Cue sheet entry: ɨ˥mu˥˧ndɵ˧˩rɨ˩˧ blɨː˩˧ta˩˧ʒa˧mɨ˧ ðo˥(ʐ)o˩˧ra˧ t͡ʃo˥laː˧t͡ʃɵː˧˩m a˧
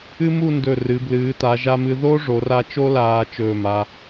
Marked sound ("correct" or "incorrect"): correct